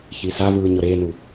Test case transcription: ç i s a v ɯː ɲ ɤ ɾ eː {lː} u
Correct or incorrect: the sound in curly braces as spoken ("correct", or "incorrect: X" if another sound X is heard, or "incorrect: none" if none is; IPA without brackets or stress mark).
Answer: incorrect: n